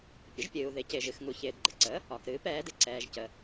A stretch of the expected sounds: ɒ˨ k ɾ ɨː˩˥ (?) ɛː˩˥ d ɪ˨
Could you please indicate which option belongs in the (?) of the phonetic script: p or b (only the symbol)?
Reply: p